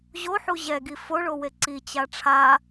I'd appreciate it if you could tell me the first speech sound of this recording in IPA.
ʑ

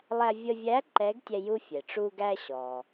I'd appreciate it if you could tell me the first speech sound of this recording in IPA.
lˠ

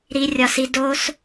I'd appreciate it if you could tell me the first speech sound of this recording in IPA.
ɾ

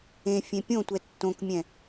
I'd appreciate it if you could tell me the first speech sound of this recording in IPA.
ẽ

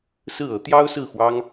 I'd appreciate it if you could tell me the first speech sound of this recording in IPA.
s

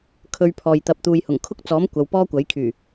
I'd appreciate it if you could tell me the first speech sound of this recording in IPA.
kʰ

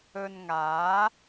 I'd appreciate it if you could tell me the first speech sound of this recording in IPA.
ɵ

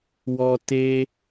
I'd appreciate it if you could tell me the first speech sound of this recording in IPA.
w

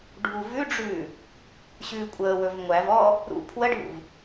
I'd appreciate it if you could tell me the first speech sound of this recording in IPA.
ɖʱ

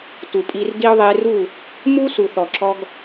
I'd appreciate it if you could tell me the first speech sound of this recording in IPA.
t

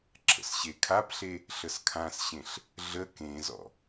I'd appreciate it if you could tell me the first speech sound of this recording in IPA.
ǁʰ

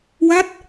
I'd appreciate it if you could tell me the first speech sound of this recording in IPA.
w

